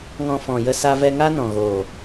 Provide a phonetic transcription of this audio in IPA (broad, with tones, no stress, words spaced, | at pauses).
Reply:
ŋɔ̃˧fɔ̃˨jə˦˨ sa˧vɛ˧ ŋa˦nɔ̃˨ɣoː˨